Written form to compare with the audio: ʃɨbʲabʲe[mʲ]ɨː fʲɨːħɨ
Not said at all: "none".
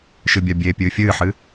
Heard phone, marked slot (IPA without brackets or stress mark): pʲ